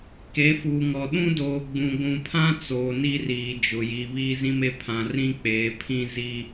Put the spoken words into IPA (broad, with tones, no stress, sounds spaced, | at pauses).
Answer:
k e˨˦ f uː˨ ŋ ɔ˨ ɗ ũ˦ d oː˨ ɡ͡b ũ˨ ɡʷ ũ˨ pʰ ã˦ t͡s oː˨ n i˦ r iː˨ d͡ʒ ʊ˨ j i˨ β iː˦ z ĩ˦ m e˦ pʰ ã˨ r ĩ˦ k͡p eː˨˦ pʰ ĩ˦ z i˦